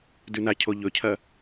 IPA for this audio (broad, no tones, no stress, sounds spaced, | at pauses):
d ʉ n a cʰ o ʎ ɵ cʰ ɐ